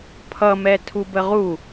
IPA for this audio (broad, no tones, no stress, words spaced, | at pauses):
pʰʌmɛ tʰubəʁu